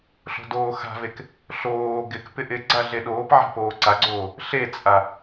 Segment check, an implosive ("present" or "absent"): present